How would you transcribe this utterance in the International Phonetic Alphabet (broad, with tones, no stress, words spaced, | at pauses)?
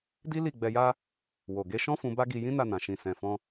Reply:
di˦li˦˨ ɡ͡bɛ˧ja˦ | wo˨ ɡe˧ʃɔ̃˦fũ˧ ba˦ɡi˧jĩ˦na˦˨ nã˨ʃĩ˨ sɛ̃˨fɔ̃˧